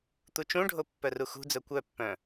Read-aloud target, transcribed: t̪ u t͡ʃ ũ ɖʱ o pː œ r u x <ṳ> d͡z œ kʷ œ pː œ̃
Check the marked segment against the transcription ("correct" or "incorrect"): correct